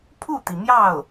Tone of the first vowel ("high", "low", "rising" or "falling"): falling